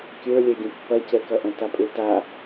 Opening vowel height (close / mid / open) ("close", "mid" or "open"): mid